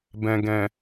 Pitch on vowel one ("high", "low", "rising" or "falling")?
low